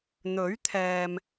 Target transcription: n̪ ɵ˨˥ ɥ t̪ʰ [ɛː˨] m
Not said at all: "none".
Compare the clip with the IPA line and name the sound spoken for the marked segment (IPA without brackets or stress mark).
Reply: ɛː˨